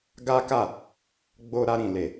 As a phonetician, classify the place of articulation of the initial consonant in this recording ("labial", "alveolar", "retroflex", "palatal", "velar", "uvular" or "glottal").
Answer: velar